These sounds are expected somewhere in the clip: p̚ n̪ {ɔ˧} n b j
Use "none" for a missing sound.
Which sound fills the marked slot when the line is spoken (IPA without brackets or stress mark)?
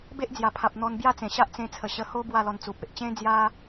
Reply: ɔ˧